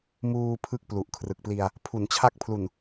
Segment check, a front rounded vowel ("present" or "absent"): absent